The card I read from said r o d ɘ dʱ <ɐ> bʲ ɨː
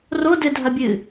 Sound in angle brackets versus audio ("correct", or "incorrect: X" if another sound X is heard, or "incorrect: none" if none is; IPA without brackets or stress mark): correct